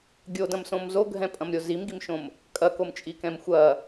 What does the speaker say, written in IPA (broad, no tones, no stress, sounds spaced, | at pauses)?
ɡʲ o d ɐ̃ m s õ m z o ɡʱ ɛ̃ pʼ ɐ̃ m ɾʲ o z i m ɡ i m ʃ õ m | kʼ ɐ k o m t͡ʃʼ i k ɛ̃ m xʷ ɐ